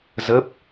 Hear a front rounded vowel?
no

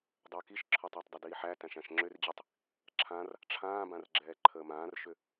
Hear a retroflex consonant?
yes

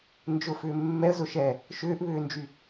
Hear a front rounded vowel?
yes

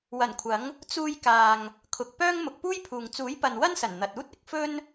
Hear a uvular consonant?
no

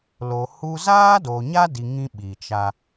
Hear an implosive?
yes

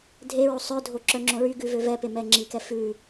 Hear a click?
yes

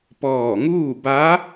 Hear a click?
no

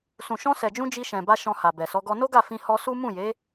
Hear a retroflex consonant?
no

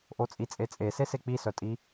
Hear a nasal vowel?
no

